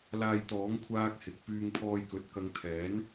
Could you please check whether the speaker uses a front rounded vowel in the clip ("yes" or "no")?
yes